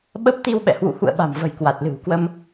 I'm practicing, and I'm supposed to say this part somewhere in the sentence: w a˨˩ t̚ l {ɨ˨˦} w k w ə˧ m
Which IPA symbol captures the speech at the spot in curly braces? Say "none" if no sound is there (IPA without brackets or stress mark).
ɨ̤˨˩